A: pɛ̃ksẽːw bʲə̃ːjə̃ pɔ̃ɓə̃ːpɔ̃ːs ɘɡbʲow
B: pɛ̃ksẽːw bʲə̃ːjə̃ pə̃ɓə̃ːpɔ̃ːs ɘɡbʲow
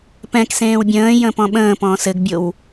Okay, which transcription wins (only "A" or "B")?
A